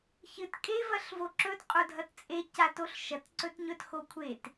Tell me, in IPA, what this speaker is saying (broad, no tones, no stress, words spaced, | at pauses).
çɨt kʼe vɐɬvoǁɵt qʼodʱɐtt͡sʼe catoɬʃɐt ǀɵtɲɵt xokʷʰet